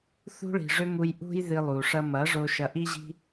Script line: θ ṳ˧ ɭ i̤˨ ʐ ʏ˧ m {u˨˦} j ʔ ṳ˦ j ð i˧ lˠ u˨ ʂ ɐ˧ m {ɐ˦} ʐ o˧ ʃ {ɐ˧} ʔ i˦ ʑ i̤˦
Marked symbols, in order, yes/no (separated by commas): no, no, yes